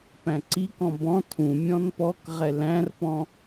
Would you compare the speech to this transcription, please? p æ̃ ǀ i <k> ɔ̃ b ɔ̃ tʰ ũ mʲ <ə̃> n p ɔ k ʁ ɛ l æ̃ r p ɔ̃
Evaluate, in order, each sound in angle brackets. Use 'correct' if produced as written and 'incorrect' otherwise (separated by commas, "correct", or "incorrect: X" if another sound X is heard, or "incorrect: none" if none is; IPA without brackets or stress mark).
correct, incorrect: ɔ̃